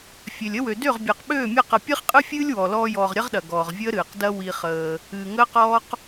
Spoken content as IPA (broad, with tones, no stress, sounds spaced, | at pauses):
fʲ ø˨ lʲ ə˦ w ø˨ d ø˦˨ ʁ bʲ əː˨ q ɓ øː˦˨ mʲ ɐ˦˨ q ə˨ pʲ ɨ˦ χ qʼ ɨ˦ fʲ ɨː˦ lʲ w ɔ˨ l ɔː˧ j ɔː˨ ʁ ɾʲ ɐ˦ ʁ ɗ ɐ˨ ɡ ɔː˨ ʁ vʲ əː˦ ɾ ɨː˨ q d ɐ˦ w i˧ χ əː˧ | ɨː˨ ŋ əː˦ q ɔː˦ q